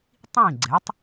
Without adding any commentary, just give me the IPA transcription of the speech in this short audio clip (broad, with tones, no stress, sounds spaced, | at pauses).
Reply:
tˤ ĩ˥˩ ɡ͡ǀ ɛ˩˥ tˤ